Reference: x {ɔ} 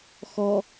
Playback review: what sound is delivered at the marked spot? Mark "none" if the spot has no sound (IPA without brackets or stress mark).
ɔ